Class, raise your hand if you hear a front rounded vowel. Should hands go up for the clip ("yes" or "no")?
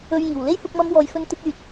yes